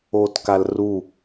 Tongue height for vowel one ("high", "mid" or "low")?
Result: mid